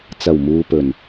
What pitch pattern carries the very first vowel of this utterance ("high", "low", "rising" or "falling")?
low